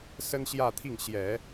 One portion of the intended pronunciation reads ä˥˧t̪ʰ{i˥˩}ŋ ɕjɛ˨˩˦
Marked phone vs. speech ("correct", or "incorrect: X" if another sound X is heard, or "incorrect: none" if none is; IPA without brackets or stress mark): correct